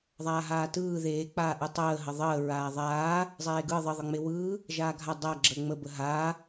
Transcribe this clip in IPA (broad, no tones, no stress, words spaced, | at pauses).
ðˤaːɦaːtɯː ðeː k͡paːʔɯtˤəː ɦəðˤəː ɹaːðˤaː | zˤeːɡɯ ðˤə ðˤɯŋ͡mewɯː | ʒaːɡʱa dˤa ɡ͡ǁəːŋ͡mə bəɦaː